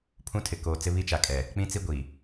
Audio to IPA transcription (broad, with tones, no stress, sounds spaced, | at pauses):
pʰ ũ˦ tʰ ɪ˨ k oː˨ t͡s ɪ˦ β i˦ t͡ʃ a˨ kʼ ɛ˨ | k͡p ĩ˦ t͡s i˦ ɡʷ i˨